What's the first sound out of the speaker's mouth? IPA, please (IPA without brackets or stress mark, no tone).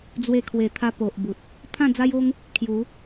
d͡z